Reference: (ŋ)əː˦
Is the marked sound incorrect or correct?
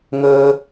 correct